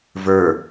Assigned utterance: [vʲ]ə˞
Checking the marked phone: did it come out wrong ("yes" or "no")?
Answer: yes